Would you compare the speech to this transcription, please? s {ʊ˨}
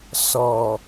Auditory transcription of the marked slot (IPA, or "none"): ɔ˨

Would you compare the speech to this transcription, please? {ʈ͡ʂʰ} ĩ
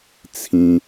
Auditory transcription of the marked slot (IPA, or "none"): t͡sʰ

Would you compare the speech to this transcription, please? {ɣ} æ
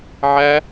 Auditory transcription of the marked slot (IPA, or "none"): ʕ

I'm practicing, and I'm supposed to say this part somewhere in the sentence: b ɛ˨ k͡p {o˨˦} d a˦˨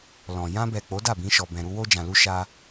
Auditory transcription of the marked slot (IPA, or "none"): o˨˦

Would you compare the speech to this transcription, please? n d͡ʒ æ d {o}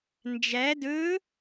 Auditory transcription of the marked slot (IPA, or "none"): ɵ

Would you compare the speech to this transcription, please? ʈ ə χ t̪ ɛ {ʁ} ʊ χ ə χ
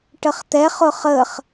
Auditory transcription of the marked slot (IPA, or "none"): χ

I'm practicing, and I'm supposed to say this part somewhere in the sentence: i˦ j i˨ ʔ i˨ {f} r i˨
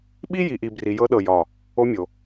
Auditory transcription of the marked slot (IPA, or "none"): b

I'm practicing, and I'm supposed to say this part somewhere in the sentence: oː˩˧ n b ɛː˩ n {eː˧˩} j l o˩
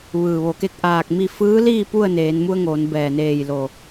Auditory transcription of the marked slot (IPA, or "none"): eː˧˩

